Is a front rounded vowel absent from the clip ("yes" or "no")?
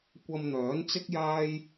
no